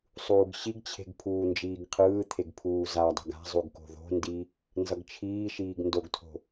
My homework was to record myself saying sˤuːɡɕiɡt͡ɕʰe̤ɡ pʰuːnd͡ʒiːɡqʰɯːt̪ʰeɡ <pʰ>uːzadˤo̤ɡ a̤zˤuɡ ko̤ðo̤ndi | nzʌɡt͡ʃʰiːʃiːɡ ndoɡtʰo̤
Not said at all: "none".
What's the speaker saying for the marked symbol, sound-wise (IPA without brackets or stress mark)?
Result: pʰ